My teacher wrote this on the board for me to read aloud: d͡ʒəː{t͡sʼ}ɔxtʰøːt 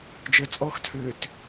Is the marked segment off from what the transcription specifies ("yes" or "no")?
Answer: no